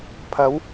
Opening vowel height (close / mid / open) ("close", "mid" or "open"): open